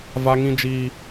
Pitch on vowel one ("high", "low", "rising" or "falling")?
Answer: high